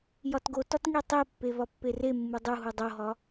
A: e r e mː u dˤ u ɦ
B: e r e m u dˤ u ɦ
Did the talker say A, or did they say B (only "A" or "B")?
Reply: A